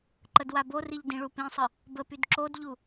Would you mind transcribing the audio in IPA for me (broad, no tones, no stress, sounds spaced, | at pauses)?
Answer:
ǃ ə d w a b o r i ʎ d ĩ ɭ u p ĩ sˤ ə | b ə p y d ǁ o d ʎ u